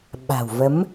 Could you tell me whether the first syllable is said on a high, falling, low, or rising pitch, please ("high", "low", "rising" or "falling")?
low